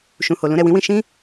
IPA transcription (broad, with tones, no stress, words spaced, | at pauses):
ʃũ˨ho˨ lũ˧ɾɛ˨wĩ˨˦wĩ˧ ʃĩ˦